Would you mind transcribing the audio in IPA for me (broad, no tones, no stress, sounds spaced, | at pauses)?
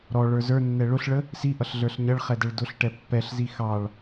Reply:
ɾ ɔ ɭ ə˞ z ə˞ nː ɛ ɭ ʊ ɬ ɭ ə | s i ʔ ʌ ɬ ɮ ə˞ ɬ ɲ ʌ ɭ χ ɛ d ɛ ɭ d ʊ ɬ ʈ ɛ pː ɛ ɬ z i x ɑ ɭ